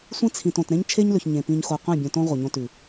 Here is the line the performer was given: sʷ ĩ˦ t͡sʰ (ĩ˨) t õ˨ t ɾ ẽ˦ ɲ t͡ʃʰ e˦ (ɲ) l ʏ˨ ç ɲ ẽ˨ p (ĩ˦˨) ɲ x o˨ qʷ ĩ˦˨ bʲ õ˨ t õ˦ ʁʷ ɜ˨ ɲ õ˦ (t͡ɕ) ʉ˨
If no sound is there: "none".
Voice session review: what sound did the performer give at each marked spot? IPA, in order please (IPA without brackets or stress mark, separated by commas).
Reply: ĩ˨, ɲ, ĩ˨, t